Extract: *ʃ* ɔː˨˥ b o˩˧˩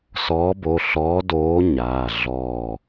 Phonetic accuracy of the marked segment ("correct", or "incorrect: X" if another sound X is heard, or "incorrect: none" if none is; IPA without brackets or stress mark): incorrect: s